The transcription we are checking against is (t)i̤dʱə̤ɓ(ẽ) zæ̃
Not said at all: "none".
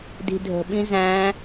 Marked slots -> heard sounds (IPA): d, ĩ

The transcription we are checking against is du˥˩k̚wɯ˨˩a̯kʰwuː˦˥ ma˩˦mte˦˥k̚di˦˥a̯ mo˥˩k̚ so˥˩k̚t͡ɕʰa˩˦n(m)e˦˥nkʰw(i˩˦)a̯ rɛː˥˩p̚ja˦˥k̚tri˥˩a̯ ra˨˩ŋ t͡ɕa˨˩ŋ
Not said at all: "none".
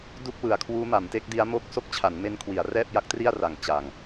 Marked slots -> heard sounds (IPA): m, i˩˦

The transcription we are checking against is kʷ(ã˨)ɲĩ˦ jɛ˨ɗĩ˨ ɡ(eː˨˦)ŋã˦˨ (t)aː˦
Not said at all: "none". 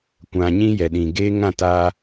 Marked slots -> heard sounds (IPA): ã˨, eː˦, t

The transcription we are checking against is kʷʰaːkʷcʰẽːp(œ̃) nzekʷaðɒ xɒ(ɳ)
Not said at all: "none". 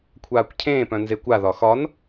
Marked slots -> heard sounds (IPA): œ̃, n

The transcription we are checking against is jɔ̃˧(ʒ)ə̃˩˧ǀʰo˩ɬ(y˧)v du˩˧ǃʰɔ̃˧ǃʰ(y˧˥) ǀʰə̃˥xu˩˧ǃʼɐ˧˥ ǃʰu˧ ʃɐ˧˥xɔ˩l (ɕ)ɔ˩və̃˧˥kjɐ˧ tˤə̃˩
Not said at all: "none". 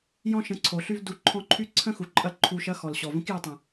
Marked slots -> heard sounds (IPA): ʃ, y˧, y˧˥, ɕ

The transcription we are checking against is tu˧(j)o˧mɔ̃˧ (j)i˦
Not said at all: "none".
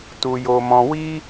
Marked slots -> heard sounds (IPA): j, w

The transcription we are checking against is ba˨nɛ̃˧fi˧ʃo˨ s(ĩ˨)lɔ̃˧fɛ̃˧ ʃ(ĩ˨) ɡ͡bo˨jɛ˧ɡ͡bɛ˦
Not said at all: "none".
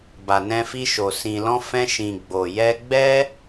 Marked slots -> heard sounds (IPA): ĩ˨, ĩ˨

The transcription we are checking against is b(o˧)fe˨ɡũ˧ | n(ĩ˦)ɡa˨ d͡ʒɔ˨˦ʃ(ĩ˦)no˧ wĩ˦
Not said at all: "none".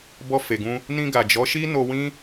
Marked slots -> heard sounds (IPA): ɔ˧, ĩ˧, i˦

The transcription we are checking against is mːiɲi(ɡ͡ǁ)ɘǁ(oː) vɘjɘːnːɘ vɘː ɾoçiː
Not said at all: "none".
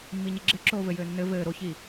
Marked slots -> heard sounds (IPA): ɡ͡ǁ, oː

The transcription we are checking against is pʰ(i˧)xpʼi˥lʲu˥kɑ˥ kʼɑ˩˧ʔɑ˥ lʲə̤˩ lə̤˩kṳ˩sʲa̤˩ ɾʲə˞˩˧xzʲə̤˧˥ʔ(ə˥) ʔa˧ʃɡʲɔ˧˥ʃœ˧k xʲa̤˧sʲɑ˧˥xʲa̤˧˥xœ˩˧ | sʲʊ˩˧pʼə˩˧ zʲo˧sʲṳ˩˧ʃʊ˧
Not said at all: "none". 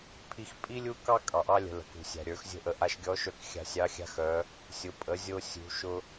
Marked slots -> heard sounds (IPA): i˧, ə˩˧

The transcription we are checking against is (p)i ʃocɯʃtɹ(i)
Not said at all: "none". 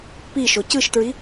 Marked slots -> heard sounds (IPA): p, i

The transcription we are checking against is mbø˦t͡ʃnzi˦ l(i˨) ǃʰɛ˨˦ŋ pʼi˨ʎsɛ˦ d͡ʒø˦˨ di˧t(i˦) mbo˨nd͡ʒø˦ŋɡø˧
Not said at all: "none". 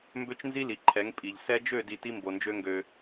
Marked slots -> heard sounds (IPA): i˨, i˦

